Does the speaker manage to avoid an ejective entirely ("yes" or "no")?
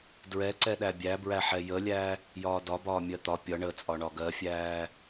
no